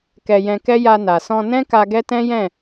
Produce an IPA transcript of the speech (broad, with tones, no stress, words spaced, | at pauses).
kɛ˧jɛ̃˧kɛ˦ ja˧na˨sɔ̃˧ nɛ̃˦ka˧ ɡɛ˦tɛ̃˦jɛ̃˦˨